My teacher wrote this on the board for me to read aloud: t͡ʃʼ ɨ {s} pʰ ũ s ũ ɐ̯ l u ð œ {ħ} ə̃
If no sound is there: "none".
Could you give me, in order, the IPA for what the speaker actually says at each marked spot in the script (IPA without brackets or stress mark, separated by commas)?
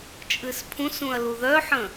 s, ħ